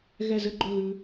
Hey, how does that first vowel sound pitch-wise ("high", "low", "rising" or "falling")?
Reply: falling